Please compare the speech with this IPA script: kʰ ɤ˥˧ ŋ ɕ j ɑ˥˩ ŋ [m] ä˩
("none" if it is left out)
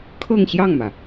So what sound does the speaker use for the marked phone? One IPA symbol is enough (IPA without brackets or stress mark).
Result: m